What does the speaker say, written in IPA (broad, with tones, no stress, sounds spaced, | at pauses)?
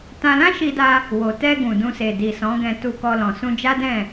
t ã˧ l ã˦ ʃ i˧ d a˧ | w o˨ t ɛ˧ ɡ ũ˨ d ũ˧ s e˨ d i˨ s ɔ̃˨˦ ɡ ɛ̃˧ t u˧ k ɔ˧ l ɔ̃˨ s ũ˧ d͡ʒ a˦ d ɛ̃˦˨